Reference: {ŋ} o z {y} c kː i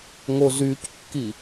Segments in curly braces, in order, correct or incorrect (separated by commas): correct, correct